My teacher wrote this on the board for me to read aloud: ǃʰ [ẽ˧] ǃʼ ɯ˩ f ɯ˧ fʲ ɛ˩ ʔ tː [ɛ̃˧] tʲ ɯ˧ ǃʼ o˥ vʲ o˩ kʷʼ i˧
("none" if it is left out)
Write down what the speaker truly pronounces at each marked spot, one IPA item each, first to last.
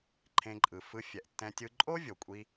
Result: ẽ˧, ɛ̃˧

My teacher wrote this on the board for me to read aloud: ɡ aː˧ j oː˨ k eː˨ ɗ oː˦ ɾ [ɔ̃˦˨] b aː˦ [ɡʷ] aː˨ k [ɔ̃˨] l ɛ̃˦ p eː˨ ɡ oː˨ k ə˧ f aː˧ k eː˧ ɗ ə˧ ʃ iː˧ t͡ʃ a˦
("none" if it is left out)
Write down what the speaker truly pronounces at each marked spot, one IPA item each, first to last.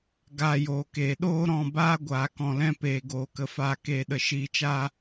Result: ɔ̃˦˨, ɡʷ, ɔ̃˨

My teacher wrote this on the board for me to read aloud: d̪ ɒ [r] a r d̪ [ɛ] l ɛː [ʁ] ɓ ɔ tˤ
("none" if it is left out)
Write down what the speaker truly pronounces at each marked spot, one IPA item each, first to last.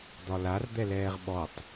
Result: l, ɛ, ʁ

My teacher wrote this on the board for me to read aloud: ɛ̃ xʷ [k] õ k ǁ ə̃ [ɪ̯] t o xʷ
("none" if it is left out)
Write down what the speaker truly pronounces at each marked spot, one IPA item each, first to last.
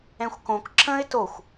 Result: k, ɪ̯

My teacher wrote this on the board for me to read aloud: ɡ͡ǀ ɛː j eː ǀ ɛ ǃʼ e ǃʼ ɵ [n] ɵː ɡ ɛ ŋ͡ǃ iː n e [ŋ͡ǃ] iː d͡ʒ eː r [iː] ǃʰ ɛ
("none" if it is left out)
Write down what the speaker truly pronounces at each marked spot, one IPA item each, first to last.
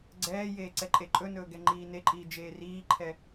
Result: n, ǃʼ, iː

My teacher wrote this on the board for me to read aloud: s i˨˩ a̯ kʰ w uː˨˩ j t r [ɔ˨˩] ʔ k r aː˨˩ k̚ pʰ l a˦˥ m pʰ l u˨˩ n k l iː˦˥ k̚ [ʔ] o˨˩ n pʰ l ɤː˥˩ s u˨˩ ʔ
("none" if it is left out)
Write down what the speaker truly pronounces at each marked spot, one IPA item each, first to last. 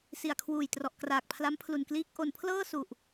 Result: ɔ˨˩, ʔ

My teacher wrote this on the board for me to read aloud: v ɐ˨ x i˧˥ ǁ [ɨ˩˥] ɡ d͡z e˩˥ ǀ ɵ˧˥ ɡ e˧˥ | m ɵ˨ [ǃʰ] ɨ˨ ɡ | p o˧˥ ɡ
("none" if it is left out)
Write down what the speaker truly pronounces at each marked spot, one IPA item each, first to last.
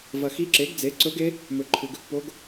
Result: e˩˥, ǃʰ

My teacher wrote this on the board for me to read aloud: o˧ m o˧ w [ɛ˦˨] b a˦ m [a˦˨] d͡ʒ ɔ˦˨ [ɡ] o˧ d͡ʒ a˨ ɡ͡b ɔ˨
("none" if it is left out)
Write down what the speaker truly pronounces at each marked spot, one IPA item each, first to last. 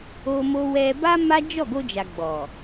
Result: ɛ˧, a˦, ɡ

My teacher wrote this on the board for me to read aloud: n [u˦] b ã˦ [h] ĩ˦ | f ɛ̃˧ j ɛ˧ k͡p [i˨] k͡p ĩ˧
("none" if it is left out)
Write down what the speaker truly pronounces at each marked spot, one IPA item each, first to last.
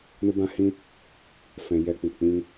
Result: u˦, h, i˨

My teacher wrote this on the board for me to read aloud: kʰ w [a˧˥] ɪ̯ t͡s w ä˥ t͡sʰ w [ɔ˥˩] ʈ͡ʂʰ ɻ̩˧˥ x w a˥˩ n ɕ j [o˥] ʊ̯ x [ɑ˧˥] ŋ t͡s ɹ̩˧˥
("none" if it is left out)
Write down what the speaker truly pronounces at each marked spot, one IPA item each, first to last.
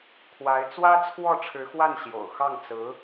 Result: a˧˥, ɔ˥˩, o̰˨˩, ɑ˥˩

